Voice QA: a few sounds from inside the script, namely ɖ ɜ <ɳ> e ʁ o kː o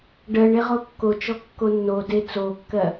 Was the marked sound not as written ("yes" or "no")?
no